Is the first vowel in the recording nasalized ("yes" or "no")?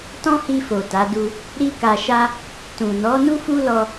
yes